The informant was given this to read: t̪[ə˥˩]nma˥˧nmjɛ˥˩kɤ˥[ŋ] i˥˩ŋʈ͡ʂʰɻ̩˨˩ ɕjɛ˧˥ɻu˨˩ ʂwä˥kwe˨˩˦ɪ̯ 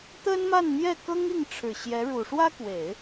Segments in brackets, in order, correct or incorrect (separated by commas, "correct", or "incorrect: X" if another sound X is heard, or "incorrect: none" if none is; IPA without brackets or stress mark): incorrect: ə˥, correct